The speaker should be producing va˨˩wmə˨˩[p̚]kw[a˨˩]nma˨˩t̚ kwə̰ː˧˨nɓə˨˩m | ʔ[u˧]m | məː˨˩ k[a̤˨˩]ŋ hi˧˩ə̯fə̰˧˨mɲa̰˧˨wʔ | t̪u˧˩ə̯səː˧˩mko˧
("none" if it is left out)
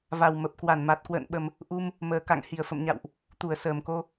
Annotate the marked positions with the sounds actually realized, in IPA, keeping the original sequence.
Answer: p̚, a˧˩, u˧, a̰˧˨

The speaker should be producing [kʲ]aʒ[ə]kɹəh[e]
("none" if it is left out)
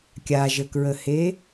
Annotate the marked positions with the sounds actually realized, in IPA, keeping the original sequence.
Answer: kʲ, ə, e

